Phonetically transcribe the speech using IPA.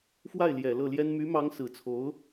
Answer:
f w a˥˩ ɪ̯ l j ɛ˨˩ l ɤ˥˩ l j ɛ˥ n m y˧˥ m ɑ˧˥ ŋ s ɹ̩˨˩ t͡sʰ o˧˥ ʊ̯

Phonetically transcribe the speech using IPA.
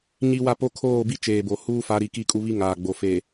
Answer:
ɲ i˦ w a˦ p o˦ kʰ oː˦˨ b i˦ t͡ʃ eː˨ b o˨ h uː˦ f a˨˦ ɾ i˨ k i˦˨ kʼ u˦ β i˦ ŋ aː˨ ɡ͡b o˨ f e˨

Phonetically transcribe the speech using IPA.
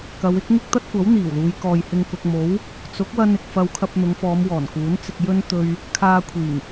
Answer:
k ɐ˨˧ w ɪ˥ k̚ ŋ ɪ˥ k̚ t̪ ɐ˥ t̚ kʷ ɐ˨˥ w n̪ iː˨˩ w l uː˨˧ j k ɔː˨ j h ɪ˧ ŋ k ʊ˨ k̚ m o˨˥ w | t͡s ʊ˨˥ k̚ w ɐ˥ n ɪ˧ k̚ f ɐ˧ w kʰ ɐ˧ p̚ n̪ ʊ˨˧ ŋ f ɔː˨˧ m w ɔː˨˩ n k uː˨˥ n t͡s ɪ˧ k̚ j ɵ˥ n t̪ ɵ˧ ɥ | kʰ aː˧ kʷʰ iː˨˩ ŋ

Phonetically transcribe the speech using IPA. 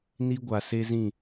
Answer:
n i˦ ɡʷ a˨ s e˦ z ĩ˦˨

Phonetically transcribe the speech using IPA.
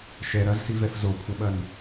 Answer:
ʃ ɛ ɾ ɐ z s i v ɛ f z o kʷʰ ɐ ɓ ɐ n

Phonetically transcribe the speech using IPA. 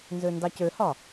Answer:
n z ø n d ɑ c ø h ɒ

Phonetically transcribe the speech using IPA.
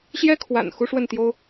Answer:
ɕ j ɛ˥ kʰ w a̰˨˩ n x u˥ ʂ w ə˥˩ n t̪ j o˥ ʊ̯

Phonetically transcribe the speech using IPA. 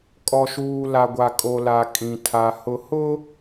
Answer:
kʼ ɔ˨ ʃ uː˨ l a˨ ɡʷ a˨ kʼ o˨ l a˨ kʼ ĩ˨ tʰ a˨ h ʊ˨ h ʊ˦

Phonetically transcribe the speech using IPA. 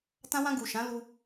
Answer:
t ã˧ w ã˧ ɡ u˨ ʃ ã˨˦ l u˧

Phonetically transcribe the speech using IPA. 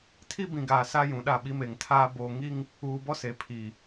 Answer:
tʰ i˦ b ĩ˨ ɡ aː˨ s a˦ j ũ˨ ɗ a˦˨ ɓ i˦ m e˨ ŋ tʰ aː˦ b oː˨ ŋ i˦ ŋ | uː˨ b ɔ˦ s e˨ pʰ i˨

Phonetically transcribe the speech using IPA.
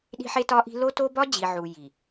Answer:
ɗ i̤˦ ħ e˦ t ɒ˦ ʔ i̤˦ l o˦ t o˦ b ɒ˦ d͡ʑ i˨ ʕ u˨ j i˨

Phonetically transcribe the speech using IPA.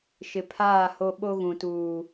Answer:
ʃ ɪ˨ pʰ aː˦˨ h o˦ ɓ o˦ ɣ ũ˨ t uː˨

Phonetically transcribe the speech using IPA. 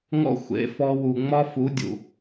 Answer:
ŋ ɔ̰˦ xʷ ḛ˨˦ f ɔ˧ w u˨ ŋ͡m ɒ˦ f u˨˦ dʲ ṵ˨

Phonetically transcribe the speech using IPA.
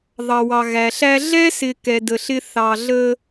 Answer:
ðˤ ɑ˨ w ɑ˨ ɣ æ˨ ɬ æ˦ ɮ ɛ˦ s ɪ˨ k ɛ˨ d ə˨ ɬ ɪ˦ θ ɑ˨ ɮ ə˦

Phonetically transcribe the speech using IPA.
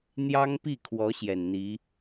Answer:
n̪ j ɑ˥ ŋ p i˥˩ kʰ w ɔ˧˥ ɕ j ɛ˨˩ n n̪ i˧˥

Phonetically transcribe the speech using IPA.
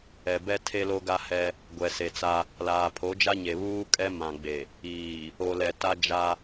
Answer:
ɛ˨ b ɛ˦ tʰ e˦ l o˦ ɡ a˦ h ɛ˦ | ɡʷ ɛ˨ s e˨ t͡s a˦ | l aː˨ pʰ o˨˦ d͡ʒ a˦ ɲ e˨ β uː˦ kʼ ɛ˦ m ã˨ ɡ͡b e˨ | iː˨ | o˨ l ɛ˨ t a˦ d͡ʒ a˦

